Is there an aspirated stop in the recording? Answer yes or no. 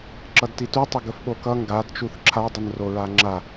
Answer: yes